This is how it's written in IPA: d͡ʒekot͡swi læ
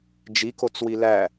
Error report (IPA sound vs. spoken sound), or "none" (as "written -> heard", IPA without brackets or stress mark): e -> i